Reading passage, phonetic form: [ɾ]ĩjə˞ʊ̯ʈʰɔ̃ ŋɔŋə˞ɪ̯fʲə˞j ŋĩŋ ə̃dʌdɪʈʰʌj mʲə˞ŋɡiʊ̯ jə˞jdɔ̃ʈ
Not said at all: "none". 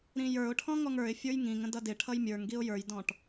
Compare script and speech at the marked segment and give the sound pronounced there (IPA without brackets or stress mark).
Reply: ɾ